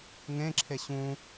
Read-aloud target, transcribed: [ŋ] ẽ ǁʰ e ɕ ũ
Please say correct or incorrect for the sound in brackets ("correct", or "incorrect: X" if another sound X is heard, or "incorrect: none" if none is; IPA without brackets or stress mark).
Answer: correct